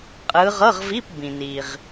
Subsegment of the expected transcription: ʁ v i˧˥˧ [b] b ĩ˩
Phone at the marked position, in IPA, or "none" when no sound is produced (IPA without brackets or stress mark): p